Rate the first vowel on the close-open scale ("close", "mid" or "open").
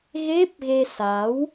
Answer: mid